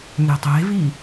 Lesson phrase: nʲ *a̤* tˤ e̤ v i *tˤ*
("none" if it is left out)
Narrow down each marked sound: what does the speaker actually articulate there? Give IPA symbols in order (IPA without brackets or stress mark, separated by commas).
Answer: a̤, none